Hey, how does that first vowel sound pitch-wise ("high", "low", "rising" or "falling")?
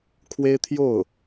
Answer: high